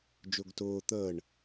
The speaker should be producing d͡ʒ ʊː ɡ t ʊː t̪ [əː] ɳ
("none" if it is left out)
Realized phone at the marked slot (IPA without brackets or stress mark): əː